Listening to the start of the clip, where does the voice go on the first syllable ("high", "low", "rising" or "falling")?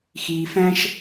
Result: low